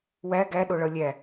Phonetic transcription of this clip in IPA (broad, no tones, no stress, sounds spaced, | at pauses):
w æ ɡ æ ɗ o ɭ ʌ lʲ æ